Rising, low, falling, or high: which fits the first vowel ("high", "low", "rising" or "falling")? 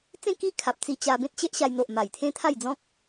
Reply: falling